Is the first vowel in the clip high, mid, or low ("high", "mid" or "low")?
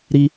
high